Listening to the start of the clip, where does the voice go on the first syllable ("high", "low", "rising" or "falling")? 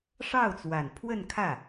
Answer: falling